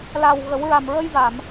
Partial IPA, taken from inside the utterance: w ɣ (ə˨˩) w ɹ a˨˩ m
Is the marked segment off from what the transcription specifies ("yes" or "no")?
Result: yes